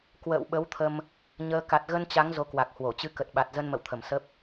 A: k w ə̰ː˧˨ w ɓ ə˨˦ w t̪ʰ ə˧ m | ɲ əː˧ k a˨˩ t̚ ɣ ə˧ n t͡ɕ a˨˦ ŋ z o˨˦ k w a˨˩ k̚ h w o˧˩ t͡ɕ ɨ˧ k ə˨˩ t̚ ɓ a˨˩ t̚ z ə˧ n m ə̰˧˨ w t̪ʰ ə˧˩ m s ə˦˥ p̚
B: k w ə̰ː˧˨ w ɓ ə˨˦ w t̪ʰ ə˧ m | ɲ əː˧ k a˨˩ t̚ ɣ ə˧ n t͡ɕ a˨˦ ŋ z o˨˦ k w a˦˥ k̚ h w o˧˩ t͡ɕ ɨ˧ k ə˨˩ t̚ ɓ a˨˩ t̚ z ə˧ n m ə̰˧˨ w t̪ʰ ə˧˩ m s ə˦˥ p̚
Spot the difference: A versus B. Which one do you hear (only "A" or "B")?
A